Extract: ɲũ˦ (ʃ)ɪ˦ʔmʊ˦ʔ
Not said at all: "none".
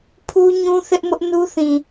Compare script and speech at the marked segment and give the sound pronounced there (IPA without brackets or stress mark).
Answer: θ